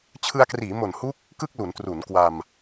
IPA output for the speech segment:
t͡ɕʰɯ˧a̯kriː˩˦ mo˨˩nhu˦˥k̚ | kɯ˥˩k̚lu˩˦n tru˩˦nkwa˧m

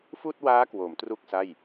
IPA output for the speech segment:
fuː˥˩t̚waː˦˥kwo˩˦m tru˥˩k̚sa˥˩j

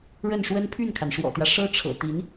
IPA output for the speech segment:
ɻə˥˩nʂwə˥n pʰy˥˩nkʰa˩nʂwɔ̰˨˩t̪jä˦ ʂɤ˥ʈ͡ʂʰɤ̰˨˩ t̪i˧˥n

